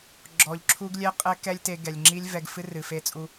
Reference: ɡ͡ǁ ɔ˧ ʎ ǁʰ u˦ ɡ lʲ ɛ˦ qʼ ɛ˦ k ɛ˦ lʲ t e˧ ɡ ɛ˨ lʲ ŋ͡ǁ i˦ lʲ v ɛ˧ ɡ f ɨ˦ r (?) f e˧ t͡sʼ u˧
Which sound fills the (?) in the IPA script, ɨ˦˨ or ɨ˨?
ɨ˨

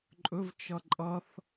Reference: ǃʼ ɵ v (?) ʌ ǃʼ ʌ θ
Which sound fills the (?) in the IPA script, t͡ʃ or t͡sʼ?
t͡ʃ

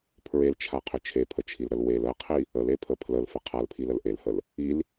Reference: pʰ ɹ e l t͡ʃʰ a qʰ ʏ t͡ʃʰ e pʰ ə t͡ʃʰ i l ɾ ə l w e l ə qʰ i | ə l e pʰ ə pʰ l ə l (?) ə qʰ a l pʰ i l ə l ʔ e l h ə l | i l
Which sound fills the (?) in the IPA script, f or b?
f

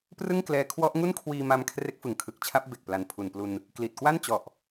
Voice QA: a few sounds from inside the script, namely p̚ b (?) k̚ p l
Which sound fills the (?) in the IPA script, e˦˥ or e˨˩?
e˨˩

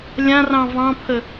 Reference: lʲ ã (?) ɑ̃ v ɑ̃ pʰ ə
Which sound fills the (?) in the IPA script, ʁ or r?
r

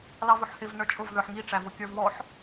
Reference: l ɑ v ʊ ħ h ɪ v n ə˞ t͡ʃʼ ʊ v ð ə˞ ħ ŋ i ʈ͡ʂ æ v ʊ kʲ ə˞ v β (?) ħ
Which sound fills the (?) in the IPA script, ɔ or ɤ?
ɔ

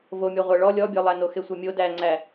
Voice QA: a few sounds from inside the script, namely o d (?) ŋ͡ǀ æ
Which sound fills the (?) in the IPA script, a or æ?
æ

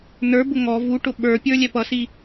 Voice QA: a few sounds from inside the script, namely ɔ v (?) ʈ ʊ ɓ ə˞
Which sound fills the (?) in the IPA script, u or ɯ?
u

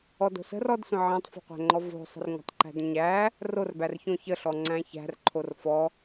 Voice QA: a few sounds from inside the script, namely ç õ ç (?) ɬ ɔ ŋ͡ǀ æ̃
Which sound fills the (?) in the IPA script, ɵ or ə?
ə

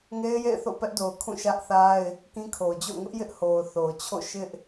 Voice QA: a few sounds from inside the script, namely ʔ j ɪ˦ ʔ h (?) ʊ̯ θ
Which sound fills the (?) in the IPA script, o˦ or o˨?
o˨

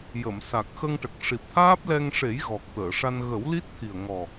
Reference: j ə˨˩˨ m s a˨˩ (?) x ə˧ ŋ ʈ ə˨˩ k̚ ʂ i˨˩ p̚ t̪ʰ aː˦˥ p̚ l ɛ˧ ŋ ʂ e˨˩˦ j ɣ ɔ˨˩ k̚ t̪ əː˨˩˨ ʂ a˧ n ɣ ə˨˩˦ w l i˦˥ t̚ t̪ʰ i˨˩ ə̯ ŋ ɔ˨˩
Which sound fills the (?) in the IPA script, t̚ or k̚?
k̚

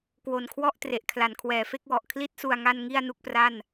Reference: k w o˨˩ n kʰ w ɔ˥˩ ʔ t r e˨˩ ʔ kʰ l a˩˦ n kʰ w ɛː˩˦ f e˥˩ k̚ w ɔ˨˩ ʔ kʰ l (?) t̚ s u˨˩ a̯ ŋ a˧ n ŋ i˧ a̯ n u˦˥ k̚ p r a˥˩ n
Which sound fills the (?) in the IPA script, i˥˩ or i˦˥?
i˦˥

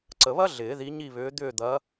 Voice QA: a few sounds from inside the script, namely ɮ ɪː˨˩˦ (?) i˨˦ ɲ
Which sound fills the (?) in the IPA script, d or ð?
ð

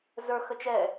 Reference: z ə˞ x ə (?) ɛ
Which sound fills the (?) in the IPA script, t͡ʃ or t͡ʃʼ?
t͡ʃ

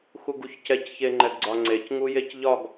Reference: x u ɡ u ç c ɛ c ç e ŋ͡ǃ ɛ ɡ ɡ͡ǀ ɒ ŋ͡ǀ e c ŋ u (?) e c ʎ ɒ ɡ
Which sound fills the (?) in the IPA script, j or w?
j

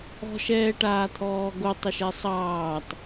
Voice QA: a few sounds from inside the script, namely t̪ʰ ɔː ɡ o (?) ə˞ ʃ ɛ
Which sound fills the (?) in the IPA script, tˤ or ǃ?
tˤ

